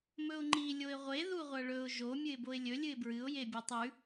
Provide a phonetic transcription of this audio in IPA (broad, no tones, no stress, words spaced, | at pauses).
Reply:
mɵʊ̯ŋ͡ǃi lʲoɪ̯ʁʷe ðuʁʷɐɭɵʊ̯ ʒo mʲɨɪ̯boɪ̯lʲɵ lʲɨɪ̯bɹɨʊ̯ jebʲatˤʉ